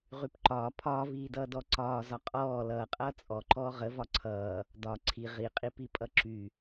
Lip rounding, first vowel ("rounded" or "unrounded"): rounded